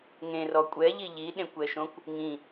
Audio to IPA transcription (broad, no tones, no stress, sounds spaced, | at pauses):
ŋ ẽ r ɔ kʷʼ ɛ ʎ i ʎ i ɗ ẽ kʷ ɛ ʃ õ kʷ | ŋ ĩ